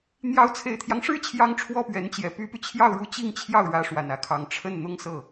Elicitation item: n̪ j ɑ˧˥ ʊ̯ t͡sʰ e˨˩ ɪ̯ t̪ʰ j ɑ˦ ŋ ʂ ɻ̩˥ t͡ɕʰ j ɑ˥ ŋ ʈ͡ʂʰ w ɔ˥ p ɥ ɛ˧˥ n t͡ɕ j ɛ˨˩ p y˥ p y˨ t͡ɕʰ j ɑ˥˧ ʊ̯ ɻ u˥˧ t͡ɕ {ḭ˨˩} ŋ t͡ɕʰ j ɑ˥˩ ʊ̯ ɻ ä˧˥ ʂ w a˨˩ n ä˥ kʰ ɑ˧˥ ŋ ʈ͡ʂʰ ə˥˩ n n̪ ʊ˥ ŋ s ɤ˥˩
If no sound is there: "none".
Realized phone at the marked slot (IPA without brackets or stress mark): i˥˧